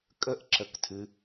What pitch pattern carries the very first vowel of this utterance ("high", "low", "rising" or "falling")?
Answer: falling